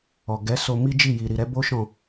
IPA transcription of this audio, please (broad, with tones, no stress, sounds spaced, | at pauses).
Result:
ɔ˨ ɡ ɛ˨˦ s o˧ m i˦ d͡ʒ i˦˨ j i˨ ɾ i˨ ɾ ɛ˨˦ b o˦ ʃ ɔ̃˦˨